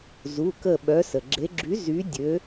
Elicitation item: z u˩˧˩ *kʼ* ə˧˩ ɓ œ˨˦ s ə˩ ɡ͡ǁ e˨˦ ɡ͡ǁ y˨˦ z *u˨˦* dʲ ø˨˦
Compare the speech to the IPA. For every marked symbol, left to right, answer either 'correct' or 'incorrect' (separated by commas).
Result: incorrect, incorrect